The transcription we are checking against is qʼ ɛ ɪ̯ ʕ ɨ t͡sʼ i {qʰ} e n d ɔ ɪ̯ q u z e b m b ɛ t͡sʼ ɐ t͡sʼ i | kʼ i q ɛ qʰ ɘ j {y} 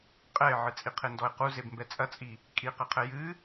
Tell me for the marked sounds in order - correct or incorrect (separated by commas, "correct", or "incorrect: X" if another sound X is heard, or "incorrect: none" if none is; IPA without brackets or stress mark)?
correct, incorrect: ɨ